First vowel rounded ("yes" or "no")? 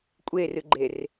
no